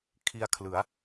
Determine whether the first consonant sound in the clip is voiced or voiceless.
voiceless